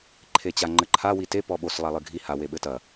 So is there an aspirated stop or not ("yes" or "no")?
yes